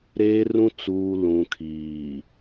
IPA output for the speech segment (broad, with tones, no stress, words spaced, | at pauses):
ɾeː˦rũ˦ t͡suː˨ lũ˨kʰiː˨